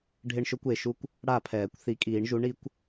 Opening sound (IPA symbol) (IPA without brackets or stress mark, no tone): ɖʱ